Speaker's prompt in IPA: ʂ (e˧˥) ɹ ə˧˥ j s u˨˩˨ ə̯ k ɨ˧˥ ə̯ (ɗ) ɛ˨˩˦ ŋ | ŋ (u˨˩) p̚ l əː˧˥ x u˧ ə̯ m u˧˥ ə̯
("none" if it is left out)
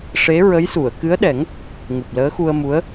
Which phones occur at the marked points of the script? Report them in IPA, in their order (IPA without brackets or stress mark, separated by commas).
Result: e˧˥, ɗ, u˨˩